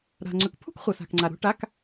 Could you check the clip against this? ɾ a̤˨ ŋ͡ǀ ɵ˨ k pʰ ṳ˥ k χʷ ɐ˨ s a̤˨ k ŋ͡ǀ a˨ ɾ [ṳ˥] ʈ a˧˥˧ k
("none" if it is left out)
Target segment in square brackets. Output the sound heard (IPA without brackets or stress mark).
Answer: ṳ˧˥˧